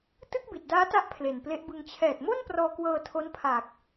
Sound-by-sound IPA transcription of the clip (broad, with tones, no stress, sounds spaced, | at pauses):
t ɯ˥˩ k̚ b i˨˩ t̚ d aː˦˥ t a˦˥ ʔ pʰ l e˨˩ n p l e˦˥ ʔ b ɯ˧ ŋ t͡ɕʰ ɛː˨˩ t̚ m o˥˩ n p r ɔː˧ k w ɤː˧ tʰ o˦˥ n pʰ aː˨˩ k̚